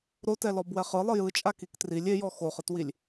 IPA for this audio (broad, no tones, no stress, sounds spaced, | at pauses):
ɾ o t ɛ l ɔ b w ɛ χ ɯ lˠ ɯ j ɯ t͡ʃʼ a k i k t r i lʲ e j ɔ x o χ ɯ t w i lʲ